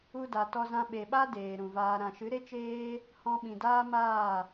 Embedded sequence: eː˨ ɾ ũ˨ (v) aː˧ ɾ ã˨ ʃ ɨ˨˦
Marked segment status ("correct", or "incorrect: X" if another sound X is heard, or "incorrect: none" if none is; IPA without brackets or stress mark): correct